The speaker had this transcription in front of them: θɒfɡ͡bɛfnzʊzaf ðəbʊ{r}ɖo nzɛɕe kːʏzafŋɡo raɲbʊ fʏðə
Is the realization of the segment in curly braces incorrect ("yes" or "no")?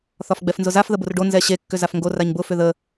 no